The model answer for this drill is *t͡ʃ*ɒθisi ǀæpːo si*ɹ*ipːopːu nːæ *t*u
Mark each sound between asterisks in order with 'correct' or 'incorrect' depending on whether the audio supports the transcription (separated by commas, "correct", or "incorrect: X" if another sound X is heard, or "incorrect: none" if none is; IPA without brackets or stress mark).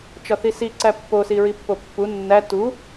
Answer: correct, correct, correct